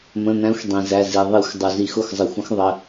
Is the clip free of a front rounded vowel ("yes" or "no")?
yes